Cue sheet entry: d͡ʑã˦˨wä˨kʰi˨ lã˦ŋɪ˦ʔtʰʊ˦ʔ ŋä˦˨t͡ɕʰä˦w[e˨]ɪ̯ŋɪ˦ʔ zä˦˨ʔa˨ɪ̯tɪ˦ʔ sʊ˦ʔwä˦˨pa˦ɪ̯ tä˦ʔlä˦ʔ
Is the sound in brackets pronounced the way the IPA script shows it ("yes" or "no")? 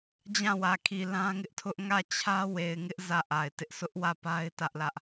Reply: yes